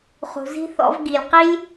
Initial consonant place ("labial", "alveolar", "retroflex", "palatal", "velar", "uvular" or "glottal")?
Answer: uvular